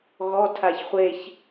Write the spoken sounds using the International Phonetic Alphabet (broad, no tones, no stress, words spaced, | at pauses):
ɣɔ tʰaçχʷeç